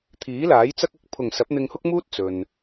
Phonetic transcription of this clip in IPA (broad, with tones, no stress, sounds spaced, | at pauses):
t̪ʰ iː˨˥ l aː˨˥ j t͡s ɐ˥ k̚ ɐ˧ k̚ pʰ ʊ˨˩ ŋ s ɐ˨˥ p̚ n̪ ɪ˧ ŋ h ʊ˥ k̚ m uː˥ t̚ t͡s ɵ˨ n